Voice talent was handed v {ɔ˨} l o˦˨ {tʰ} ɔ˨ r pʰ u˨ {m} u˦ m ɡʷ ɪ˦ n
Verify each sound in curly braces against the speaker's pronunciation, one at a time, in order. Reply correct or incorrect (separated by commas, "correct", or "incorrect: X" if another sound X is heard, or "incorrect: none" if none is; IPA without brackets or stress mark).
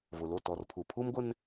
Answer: incorrect: ʊ˨, incorrect: t, incorrect: pʰ